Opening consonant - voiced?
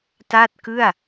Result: no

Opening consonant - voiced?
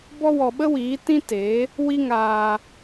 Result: yes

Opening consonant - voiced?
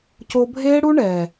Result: no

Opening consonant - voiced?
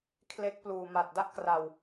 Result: no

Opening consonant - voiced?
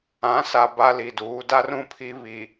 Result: no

